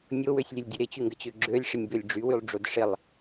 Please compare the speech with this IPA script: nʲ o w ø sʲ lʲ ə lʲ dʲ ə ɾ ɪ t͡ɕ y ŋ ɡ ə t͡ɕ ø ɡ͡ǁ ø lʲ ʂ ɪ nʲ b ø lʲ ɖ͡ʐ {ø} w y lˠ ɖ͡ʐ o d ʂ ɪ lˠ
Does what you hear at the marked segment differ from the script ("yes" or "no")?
yes